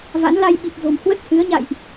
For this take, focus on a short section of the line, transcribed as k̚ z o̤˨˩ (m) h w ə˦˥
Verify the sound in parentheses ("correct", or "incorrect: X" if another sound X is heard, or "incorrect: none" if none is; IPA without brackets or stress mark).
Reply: correct